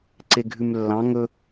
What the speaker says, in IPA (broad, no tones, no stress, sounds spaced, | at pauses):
ǀ e ɡʱ ʉ m lː ɑ̃ ŋ ɵ